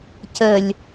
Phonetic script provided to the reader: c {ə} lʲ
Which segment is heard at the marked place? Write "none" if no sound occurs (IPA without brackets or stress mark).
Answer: ə